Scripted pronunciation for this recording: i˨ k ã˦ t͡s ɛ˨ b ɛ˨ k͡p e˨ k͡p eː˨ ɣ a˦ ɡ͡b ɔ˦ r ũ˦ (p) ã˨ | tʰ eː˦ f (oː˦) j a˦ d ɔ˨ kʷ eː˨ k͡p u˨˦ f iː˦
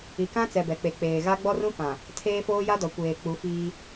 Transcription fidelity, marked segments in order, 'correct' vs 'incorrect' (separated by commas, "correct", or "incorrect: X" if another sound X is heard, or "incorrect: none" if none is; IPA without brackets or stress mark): correct, correct